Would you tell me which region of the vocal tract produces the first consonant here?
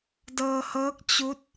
tongue tip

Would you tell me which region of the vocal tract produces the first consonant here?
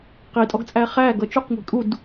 uvula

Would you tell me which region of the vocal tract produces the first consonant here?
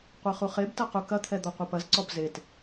uvula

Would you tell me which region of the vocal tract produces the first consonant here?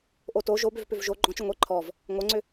throat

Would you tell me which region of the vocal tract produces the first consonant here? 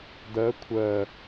tongue tip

